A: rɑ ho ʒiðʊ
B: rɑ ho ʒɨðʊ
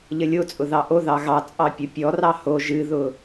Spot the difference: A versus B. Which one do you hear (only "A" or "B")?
B